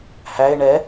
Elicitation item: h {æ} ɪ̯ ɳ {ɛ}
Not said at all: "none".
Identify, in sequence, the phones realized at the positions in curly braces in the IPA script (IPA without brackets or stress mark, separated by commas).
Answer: æ, ɛ